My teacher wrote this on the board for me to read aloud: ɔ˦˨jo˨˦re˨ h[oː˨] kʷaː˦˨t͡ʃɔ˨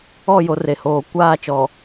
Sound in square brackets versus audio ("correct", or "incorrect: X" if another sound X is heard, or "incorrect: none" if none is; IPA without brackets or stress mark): correct